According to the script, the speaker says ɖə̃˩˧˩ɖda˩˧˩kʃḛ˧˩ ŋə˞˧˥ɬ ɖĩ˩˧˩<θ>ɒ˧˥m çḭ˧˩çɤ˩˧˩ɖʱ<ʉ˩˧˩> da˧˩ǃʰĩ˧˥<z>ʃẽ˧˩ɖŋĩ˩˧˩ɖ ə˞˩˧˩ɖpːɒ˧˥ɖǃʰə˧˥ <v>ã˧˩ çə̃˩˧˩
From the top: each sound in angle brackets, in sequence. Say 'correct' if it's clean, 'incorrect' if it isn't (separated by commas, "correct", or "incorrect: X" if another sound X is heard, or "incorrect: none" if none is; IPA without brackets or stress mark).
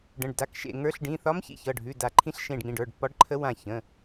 correct, correct, incorrect: ɬ, incorrect: w